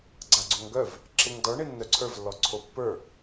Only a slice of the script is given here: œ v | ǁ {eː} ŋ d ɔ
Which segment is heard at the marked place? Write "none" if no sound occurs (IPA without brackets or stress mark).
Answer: e